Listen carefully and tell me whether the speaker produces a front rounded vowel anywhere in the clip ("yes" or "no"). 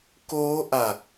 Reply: no